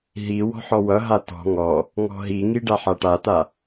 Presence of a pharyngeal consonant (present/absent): present